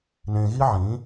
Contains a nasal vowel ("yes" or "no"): yes